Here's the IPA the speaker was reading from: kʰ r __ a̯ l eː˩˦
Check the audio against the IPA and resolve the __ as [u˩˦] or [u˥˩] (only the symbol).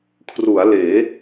u˩˦